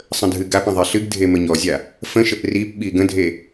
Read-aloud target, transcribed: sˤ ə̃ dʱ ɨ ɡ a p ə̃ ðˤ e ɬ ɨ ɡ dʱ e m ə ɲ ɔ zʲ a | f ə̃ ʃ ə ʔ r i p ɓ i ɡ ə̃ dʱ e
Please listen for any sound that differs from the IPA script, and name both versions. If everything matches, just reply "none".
none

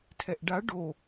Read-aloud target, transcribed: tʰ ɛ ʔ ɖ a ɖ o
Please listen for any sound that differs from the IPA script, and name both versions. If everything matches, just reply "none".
none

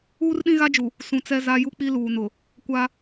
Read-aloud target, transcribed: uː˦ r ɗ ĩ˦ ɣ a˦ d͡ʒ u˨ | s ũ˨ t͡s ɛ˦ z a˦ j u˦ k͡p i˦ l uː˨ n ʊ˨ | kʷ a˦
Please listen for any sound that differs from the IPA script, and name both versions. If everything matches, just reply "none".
none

